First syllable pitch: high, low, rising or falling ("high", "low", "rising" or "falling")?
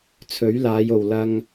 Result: rising